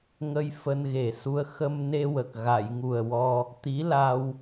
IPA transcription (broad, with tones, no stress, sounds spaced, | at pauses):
ŋ ə˧ j f əː˧ n ɣ e˨˩ s u˧ ə̯ x ə˧ m n e˧ w ə˨˩ k̚ ɣ a˨˩˨ j ŋ u˨˩ ə̯ w ɔ˧ | t̪ i˧˥ l a˧ w